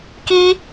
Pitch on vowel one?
high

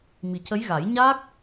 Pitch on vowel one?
low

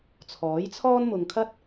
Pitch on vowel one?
rising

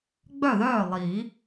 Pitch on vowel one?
falling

